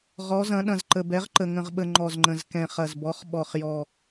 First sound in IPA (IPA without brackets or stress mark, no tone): ʁ